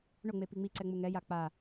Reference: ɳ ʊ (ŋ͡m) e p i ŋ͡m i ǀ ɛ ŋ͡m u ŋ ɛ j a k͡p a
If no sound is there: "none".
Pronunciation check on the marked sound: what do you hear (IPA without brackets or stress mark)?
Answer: ŋ͡m